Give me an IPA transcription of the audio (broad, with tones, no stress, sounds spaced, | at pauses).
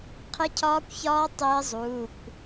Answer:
qʰ ɪ˦˥ cʰ ɒː˦˥ kʷ ç ɒː˦˥ tˤ ɪː˦˥ zˤ uː˩˧˩ kʷ